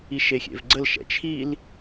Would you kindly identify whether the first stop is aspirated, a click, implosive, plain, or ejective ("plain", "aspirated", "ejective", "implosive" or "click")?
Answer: click